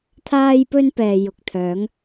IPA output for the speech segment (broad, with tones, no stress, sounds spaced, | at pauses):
t̪ʰ aː˥ j p ɵ˥ n p ɛː˨ j ʊ˨ k̚ t̪ʰ œː˨˥ ŋ